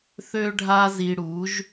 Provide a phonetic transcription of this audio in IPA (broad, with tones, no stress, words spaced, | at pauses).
θø˥ɖʱa˥ zi˧ɽu˩˥ʒ